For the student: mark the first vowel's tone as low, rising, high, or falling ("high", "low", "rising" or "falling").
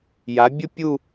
rising